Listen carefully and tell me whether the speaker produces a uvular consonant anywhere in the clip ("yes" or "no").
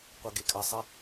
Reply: yes